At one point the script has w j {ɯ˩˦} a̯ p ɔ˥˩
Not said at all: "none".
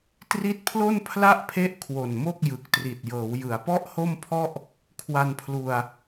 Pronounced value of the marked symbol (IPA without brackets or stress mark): ɯ˩˦